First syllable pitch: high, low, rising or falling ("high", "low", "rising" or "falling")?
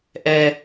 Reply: high